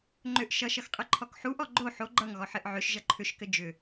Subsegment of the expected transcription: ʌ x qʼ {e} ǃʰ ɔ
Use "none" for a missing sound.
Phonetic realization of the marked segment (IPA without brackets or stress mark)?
ɘ